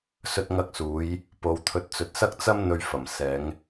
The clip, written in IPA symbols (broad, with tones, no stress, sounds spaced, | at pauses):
s ɵ˧ t̚ ŋ ɐ˧ k̚ s uː˨˧ j | p o˨ w t̪ʰ ɵ˧ t̚ t͡s ɵ˧ t̚ s ɐ˥ k̚ t͡s ɐ˥ m n̪ ɵ˧ ɥ f ɐ˨˩ m s ɛː˨˧ ŋ